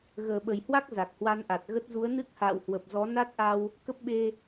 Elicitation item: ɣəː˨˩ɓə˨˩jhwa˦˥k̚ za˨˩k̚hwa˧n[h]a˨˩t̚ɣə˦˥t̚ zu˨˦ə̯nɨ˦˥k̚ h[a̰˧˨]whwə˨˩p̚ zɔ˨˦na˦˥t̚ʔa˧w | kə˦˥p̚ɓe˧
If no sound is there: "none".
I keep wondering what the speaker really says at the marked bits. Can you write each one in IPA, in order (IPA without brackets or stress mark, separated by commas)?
ʔ, a̰ː˧˨